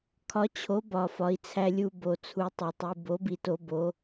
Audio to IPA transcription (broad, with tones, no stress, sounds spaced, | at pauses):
kʰ ɒ˧˥ t͡ɕʰ o˧˥ b ɒ˧ f ɒ˧˥ i̯ t͡sʰ æ˧ lʲ u˧ b o˧ t͡sʰ u˧˥ tˤ e˧ tˤ i˧ b o˧˥ b i˧ t o˧˥ b o˧˥